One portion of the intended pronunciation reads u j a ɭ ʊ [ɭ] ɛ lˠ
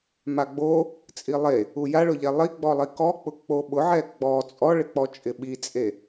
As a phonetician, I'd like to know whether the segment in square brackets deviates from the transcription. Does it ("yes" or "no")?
yes